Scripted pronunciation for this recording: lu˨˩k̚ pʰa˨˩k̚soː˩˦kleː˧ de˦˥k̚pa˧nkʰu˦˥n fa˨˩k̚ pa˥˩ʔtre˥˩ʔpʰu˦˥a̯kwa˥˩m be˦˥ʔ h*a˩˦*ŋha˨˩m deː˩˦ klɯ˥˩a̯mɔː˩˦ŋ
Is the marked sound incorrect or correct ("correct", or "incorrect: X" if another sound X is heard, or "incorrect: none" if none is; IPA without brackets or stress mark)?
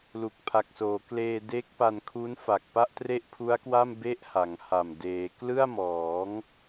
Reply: correct